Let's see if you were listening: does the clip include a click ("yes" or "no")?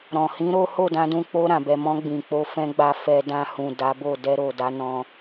no